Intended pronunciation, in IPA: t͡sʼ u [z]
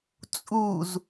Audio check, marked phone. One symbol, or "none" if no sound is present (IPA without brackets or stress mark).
z